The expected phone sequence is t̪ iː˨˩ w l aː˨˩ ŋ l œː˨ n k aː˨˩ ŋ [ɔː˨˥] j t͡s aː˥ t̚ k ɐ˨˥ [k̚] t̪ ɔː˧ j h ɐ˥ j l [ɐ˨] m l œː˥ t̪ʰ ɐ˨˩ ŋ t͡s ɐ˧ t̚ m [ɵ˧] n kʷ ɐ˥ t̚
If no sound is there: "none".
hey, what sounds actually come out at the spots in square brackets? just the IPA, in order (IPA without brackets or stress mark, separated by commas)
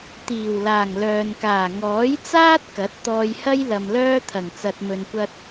ɔː˨˥, t̚, ɐ˨, ɵ˧